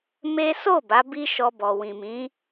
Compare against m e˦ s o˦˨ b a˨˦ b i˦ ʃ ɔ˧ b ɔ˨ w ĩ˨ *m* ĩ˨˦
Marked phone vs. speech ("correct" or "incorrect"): correct